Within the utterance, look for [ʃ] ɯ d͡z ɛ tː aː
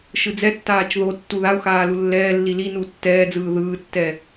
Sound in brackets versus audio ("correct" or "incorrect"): correct